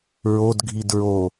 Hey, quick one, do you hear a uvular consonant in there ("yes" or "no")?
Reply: no